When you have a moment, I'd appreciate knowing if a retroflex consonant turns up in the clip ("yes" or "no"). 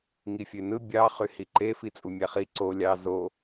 no